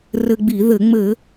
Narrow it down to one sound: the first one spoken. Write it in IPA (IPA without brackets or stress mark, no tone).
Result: r